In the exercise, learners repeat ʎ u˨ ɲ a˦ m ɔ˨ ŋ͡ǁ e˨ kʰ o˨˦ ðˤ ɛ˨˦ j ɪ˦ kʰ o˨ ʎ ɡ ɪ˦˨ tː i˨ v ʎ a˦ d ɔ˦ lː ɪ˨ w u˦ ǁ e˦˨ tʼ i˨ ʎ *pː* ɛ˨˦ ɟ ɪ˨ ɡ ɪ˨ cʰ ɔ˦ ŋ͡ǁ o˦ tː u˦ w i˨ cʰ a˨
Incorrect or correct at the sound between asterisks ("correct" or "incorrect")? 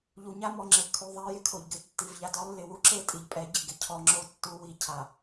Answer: incorrect